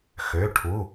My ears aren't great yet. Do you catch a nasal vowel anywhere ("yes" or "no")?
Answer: no